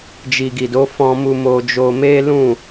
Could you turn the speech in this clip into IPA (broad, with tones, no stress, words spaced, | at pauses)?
d͡ʒi˨ɡi˨do˨˦ fɔ̃˧mu˧ mo˧d͡ʒo˧ me˦lũ˦˨